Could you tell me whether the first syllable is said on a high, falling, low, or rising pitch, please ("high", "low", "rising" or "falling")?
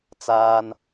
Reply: high